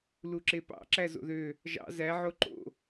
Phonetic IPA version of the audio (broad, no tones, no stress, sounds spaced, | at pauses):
l u ǁ e p ɑ̰ ǁ æ z o̰ ð ø | ʒ ɑ̰ z æ ʕ o ǃ o̰